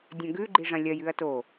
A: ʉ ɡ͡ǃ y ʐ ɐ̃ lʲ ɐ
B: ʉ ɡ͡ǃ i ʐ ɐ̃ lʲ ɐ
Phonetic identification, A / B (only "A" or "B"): B